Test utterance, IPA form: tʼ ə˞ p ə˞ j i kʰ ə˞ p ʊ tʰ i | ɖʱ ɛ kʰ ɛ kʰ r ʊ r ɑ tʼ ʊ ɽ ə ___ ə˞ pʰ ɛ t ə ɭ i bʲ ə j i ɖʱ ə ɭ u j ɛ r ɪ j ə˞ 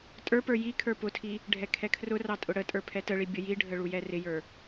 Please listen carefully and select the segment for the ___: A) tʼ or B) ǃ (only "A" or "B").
A